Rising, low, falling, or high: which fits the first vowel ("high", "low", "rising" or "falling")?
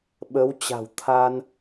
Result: rising